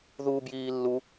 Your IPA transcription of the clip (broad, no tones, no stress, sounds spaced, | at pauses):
ð u b j iː lː u